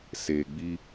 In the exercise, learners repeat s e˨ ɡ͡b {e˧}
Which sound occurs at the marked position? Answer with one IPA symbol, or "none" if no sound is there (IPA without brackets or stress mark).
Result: i˧